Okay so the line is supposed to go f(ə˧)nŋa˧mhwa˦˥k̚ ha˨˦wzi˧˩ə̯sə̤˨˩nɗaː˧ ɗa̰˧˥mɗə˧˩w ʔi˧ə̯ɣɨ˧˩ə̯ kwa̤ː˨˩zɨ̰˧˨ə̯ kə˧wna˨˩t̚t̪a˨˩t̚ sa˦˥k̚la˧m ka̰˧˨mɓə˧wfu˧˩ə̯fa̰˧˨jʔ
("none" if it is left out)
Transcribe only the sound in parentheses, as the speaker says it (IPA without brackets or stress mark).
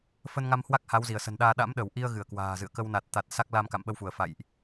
ə˧